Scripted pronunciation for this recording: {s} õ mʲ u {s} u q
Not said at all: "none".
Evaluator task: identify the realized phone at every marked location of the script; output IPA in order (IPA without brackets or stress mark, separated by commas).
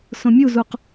s, z